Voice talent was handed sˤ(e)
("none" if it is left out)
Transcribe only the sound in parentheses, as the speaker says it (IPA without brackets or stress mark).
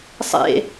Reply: ḛ